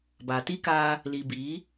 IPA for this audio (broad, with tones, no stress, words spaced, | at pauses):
baː˨ti˦ kaː˦ | liː˨biː˨˦